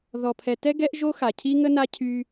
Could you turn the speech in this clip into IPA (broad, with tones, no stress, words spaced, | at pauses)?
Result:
ðɔ˨pʰɛ˨tɛ˦ ɡɛ˦ʔʒo˦xa˨ cʰi˦ŋə˦na˦ cʰy˦